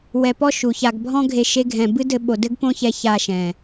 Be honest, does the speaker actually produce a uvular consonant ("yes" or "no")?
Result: no